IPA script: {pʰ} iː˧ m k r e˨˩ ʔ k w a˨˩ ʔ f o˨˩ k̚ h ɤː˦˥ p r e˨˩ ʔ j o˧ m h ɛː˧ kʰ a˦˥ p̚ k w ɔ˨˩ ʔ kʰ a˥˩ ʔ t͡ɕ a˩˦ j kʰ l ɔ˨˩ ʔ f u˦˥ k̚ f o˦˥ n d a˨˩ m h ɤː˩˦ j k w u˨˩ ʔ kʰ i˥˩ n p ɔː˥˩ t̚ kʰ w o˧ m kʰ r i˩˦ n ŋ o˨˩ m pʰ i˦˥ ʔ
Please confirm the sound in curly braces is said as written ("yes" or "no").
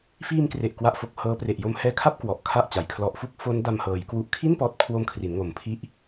no